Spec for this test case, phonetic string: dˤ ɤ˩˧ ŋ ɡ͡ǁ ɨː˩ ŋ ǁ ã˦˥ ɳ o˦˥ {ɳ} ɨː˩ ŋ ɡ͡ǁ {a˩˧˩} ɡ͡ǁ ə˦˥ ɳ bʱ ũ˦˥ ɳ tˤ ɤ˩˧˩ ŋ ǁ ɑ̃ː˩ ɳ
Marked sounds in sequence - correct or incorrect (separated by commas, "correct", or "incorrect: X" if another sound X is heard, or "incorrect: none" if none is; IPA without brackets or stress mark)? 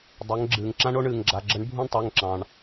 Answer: correct, correct